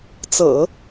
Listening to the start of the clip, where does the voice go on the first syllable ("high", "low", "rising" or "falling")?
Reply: low